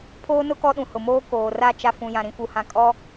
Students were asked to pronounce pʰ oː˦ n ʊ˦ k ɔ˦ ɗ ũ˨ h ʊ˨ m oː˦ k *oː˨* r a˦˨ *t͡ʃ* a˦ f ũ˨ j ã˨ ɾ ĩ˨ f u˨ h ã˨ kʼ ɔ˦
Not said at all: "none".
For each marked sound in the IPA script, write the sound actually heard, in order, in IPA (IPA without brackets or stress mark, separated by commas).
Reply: oː˨, t͡ʃ